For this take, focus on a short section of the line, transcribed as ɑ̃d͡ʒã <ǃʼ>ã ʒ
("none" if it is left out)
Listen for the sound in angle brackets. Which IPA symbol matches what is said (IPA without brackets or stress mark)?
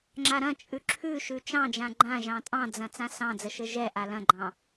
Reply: ɡ͡ǃ